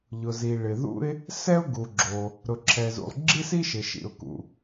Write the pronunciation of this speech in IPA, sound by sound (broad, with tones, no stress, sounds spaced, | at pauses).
ʎ ʊ˩ z i˩ ɭ ɪ˩ ð ṵ˥ ɪ̯ | s ɛ˥ ʊ̯ ɡ u˩ ɡ͡ǁ o˩ | ɾ ʊ˩ ǁʰ ɛ˩ z ṵ˩ lˠ ɡ͡ǁ i˥ s i˥ ʃ ɪ˩ ʃ ḭ˩ ʊ̯ k ṵ˩